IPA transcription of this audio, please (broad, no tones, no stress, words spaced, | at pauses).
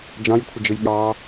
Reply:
d͡ʒɑ̃jkʷʰəd͡ʒɨj ɠɑ